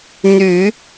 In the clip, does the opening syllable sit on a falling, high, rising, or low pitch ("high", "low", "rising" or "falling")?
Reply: low